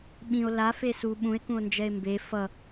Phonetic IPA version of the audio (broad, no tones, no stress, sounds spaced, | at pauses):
ɓ ĩ o̯ l a f e s u ɓ ũ e̯ k ũ o̯ n d͡ʒ ɛ e̯ m b e f ʌ